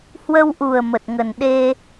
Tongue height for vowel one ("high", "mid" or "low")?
mid